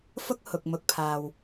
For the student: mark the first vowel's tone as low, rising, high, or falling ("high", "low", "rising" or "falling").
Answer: high